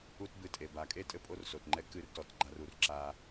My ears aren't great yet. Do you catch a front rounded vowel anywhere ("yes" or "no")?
no